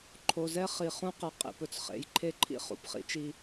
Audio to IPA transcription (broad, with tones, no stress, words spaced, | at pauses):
ǃʰo˨zɛ˦ χi˨χũ˦ qɛ˨qʼḭ˨pɵ˨t͡s χḛ˨˦jǃʰe˦ǃʰḭ˦ χṵ˨pχḭ˦t͡ʃi˦